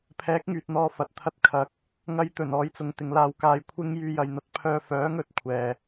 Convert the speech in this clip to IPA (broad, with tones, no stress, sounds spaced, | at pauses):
pʰ ɛː˨˥ k̚ ŋ yː˨ t̚ n̪ ɔː˧ f ɐ˨ t̚ t̪ʰ ɐ˥ t̚ kʰ ɐ˨ k̚ | ŋ ɐ˧ j t̪ ɵ˨˩ n ɔː˧ j t͡s ʊ˨ ŋ t̪ ɪ˨˧ ŋ l aː˧ w k aː˧ j kʷʰ ɪ˥ ŋ j yː˧ j ɐ˨ j n̪ ɐ˧ t̚ pʰ œː˧ f œː˨˥ ŋ ɵ˧ t̚ kʷʰ ɛː˨